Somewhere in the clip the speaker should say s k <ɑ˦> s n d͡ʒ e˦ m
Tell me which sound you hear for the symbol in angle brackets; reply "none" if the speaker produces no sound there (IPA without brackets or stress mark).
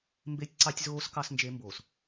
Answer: ɑ˦